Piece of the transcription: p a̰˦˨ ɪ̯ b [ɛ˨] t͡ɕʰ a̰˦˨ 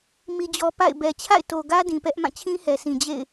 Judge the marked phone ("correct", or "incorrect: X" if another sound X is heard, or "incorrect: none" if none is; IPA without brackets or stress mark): correct